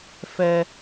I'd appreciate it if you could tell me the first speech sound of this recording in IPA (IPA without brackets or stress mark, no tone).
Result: f